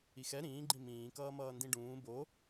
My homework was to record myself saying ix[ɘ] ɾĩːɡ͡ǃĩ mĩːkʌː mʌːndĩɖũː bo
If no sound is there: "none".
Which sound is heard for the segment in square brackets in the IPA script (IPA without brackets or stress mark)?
ɛ